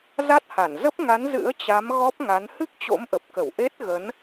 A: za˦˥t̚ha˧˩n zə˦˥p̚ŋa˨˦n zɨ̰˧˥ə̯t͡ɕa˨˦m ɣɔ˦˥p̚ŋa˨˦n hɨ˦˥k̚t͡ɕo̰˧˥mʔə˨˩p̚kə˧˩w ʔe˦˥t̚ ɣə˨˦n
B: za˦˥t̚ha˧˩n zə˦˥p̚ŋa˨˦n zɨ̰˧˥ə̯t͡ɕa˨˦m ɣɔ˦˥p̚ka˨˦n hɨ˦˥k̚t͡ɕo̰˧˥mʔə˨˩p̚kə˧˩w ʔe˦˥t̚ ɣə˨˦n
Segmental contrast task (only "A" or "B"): A